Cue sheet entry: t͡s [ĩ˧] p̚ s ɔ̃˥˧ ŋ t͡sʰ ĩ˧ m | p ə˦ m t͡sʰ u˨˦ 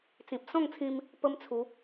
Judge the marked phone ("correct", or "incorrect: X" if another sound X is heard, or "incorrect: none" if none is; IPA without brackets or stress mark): incorrect: ĩ˨